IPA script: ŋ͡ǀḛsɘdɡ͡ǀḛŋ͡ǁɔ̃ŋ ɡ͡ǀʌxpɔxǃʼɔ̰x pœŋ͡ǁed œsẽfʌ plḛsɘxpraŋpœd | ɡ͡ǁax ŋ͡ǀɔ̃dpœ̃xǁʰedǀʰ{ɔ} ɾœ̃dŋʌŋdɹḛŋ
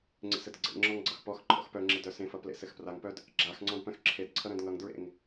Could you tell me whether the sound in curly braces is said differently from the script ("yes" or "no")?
yes